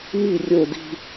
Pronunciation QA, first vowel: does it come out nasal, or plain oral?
oral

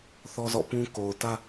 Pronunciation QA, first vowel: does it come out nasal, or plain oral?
oral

